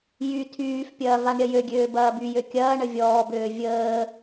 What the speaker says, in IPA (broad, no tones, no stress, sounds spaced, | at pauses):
j y tʰ yː f pʲ ɐː v a ɳ ɾʲ ɐ j ø ɡʲ øː b ɐː b y j ø kʲ ɐː ɳ ə vʲ ɔː b øː vʲ əː